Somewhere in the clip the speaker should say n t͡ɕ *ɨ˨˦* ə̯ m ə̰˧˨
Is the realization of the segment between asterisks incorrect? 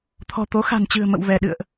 yes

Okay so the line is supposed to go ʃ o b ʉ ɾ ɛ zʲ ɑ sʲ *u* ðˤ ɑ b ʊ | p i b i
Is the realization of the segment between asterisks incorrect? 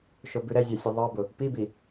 yes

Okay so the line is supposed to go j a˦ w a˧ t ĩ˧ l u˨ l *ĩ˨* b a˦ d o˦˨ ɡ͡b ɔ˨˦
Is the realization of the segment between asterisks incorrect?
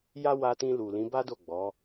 yes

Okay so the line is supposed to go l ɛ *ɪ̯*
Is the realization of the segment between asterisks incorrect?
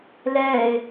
no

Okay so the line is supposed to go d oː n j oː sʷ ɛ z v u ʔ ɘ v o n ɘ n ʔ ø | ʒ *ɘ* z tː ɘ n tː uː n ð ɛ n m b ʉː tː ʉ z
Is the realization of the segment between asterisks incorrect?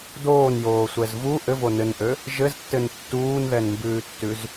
no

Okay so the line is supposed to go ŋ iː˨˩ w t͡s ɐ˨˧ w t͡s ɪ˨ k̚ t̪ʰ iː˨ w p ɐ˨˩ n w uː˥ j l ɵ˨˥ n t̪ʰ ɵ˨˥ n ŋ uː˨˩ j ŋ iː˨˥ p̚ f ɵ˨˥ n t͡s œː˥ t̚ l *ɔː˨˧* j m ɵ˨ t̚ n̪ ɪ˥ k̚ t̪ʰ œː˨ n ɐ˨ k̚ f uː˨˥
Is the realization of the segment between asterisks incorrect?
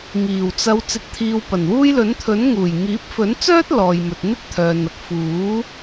yes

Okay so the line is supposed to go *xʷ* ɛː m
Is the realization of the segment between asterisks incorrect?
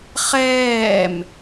yes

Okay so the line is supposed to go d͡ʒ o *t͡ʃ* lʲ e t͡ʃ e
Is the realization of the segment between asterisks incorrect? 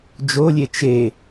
yes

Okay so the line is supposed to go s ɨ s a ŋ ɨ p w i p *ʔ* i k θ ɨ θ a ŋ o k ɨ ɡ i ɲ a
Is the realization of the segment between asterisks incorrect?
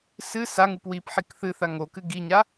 yes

